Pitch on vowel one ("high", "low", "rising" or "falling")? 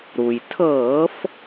low